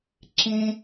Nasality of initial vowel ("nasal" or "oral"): nasal